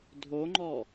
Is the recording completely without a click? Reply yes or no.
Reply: no